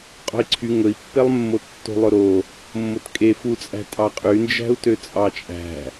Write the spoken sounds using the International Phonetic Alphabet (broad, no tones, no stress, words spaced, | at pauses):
qʼo̤i̯ǀʰy ŋɵi̯pːelˠmːo tːo̤lˠɵɾo | mːotkʼe fut͡sʼæ̤ tʼɑqʼynd͡ʒæ̤u̯ tøt͡sʼɑt͡ʃʼæ̤